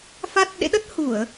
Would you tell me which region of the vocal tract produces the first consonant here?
lips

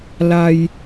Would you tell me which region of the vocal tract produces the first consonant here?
tongue tip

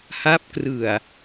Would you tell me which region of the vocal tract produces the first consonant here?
throat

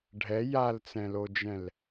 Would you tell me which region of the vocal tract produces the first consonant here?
retroflex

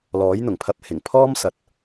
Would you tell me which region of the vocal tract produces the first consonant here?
tongue tip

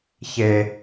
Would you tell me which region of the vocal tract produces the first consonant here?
palate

